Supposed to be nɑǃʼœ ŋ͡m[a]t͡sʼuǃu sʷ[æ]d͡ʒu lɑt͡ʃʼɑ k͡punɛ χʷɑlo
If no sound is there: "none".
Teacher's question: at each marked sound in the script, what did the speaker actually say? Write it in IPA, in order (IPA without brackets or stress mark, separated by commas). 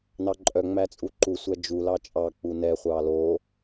æ, æ